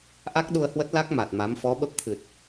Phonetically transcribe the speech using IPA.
ʔ a˦˥ k̚ ɗ u˧ ə̯ h w ə˦˥ t̚ l a˦˥ k̚ m a˨˩ t̚ m a˨˦ m f ɔ˨˦ ɓ ə˦˥ p̚ t̪ʰ ɨ˨˩ t̚

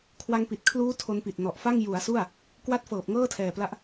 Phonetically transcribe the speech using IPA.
kʰ w a˧ ŋ p i˨˩ t̚ kʰ l uː˦˥ tʰ o˧ n p i˨˩ t̚ n ɔ˨˩ ʔ f a˥˩ ŋ j u˩˦ a̯ s u˥˩ a̯ | k w a˦˥ t̚ f ɤː˨˩ p̚ ŋ ɤː˥˩ tʰ ɛː˨˩ p l a˦˥ ʔ

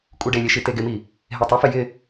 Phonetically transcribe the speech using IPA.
kʼ u ɖ e lʲ e ʃ i t e ɡ ɪ m i | ɦ e tˤ ʊ f ɪ j ɪ

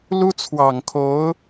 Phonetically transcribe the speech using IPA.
l u˥ t͡sʰ w ɑ˨˩ ŋ kʰ o˧˥ ʊ̯

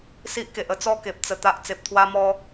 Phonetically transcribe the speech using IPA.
s i˦ ʔ k e˨ ʔ ə˦ t͡s ɔ˦ k e˨ p̚ t͡s ə˧ t̪ a˦ ʔ t͡s e˨ p̚ t̪ʰ w a˦ m ɔ˦

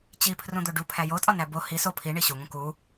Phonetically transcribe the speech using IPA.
t͡ɕ i pʰ r ũ d̪ o ɖ u pʰ æ j o tʼ ɒ n æ b o h i s o pʰ i ɳ i ɕ u ŋ ũ k u

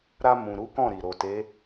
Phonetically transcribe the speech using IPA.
ɾ a˧ m ũ˨ ɾ u˨˦ k ɔ̃˦˨ ɾ i˨ ɾ o˨ t e˨˦

